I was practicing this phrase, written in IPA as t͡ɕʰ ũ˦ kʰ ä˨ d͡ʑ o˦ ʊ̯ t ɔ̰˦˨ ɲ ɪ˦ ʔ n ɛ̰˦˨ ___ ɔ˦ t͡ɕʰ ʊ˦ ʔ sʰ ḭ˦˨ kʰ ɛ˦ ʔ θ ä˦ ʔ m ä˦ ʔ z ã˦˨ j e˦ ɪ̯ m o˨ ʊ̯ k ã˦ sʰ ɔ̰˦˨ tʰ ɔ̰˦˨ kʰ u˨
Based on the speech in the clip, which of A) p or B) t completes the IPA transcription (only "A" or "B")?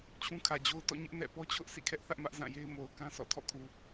A